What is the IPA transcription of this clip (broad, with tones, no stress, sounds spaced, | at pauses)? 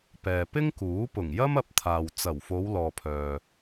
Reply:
p ɛː˨ p ɪ˥ ŋ k uː˨˥ p ʊ˨˩ ŋ j ɐ˥ m ɐ˧ p̚ t̪ʰ aː˨ w t͡s ɐ˨˩ w f o˨˧ w l ɔː˨ pʰ œː˨